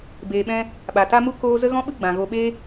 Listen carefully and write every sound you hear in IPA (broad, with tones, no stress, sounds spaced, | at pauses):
b eː˧ ɓ ɛ̃˦ | ɓ a˨ t a˦ m u˦ k oː˦ z ə˦ ɣ ɔ̃˦ ɓ ɨ˦ ɡ͡b ã˨ ɣ o˧ ɓ e˦